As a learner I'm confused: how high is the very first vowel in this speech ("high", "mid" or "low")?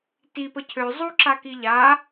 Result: high